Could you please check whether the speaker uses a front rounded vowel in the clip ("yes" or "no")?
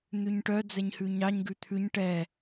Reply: yes